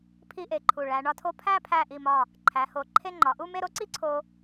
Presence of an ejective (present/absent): absent